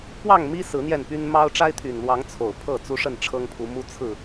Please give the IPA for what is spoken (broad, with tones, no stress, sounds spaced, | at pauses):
p w ɑ˥˨ ŋ m i˦ s ɹ̩˨˦ n̪ j ɛ˥˨ n p y˦ n m ɑ˦ ʊ̯ ʈ͡ʂ a˦ ɪ̯ t̪ʰ y˨˩ n l w ɑ˨˦ ŋ t͡sʰ o˨˩ ʊ̯ pʰ ɤ˥˨ t͡s u˦ ʂ ə˥˨ n ʈ͡ʂʰ ɤ˦ ŋ pʰ u˨˦ m u˦ t͡sʰ ɹ̩˥˨